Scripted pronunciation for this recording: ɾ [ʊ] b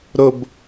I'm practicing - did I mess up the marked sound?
no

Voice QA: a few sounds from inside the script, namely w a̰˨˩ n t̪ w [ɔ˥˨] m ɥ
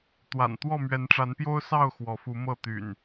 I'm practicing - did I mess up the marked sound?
no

